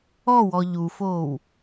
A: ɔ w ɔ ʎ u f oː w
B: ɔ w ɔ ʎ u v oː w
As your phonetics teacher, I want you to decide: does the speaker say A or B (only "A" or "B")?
A